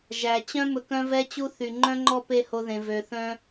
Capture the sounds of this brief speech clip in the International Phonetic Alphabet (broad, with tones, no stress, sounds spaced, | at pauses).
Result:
ʒ æ˨ t͡ɕ œ̃˦ m ɵ˧ k œ̃˦ v ɛ˦ t͡ɕ u˦ θ y˨ ŋ͡ǃ œ̃˦ ŋ͡ǃ ɔ˦ p e˦ h o˧ ð ẽ˨ v ø˨ θ œ̃˦